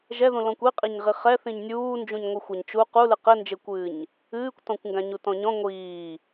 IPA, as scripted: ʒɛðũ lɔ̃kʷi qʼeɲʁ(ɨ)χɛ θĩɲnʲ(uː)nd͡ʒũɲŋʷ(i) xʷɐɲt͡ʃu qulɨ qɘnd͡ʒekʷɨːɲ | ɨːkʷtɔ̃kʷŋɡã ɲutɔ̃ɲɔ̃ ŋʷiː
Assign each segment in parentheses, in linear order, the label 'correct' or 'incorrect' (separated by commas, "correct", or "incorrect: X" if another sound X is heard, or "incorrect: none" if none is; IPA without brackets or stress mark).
incorrect: i, correct, incorrect: ɨ